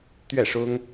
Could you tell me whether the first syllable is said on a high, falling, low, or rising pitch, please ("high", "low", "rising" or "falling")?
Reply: falling